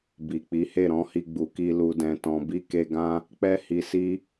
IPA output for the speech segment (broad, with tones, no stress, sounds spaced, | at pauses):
b i˨ k͡p i˨˦ h e˦˨ ɾ ɔ̃˧ h i˧ ɡ͡b u˨ k i˧ l u˨ d ɛ̃˨ t ɔ̃˨ b i˧ k e˧ ɡ ã˦ | k͡p ɛ˦ h i˧ s i˦